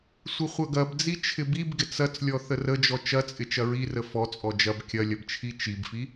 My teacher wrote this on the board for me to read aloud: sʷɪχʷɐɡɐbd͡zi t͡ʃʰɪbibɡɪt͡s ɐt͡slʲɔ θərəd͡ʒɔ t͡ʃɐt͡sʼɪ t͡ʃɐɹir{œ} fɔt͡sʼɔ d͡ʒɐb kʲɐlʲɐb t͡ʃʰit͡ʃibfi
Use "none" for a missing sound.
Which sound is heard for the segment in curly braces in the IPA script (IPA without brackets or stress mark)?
ə